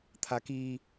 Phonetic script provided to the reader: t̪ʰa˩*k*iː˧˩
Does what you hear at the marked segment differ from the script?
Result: no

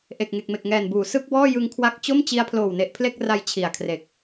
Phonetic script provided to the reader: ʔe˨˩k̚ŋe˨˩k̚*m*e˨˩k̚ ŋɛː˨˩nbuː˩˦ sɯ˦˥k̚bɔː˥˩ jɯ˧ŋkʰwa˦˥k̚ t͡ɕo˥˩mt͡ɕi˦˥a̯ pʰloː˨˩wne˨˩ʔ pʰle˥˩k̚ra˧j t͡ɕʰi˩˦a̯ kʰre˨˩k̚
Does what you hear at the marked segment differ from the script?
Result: no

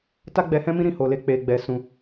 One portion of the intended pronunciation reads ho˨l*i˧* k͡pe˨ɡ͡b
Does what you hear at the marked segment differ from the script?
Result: yes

